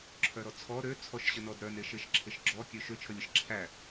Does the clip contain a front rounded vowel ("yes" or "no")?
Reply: yes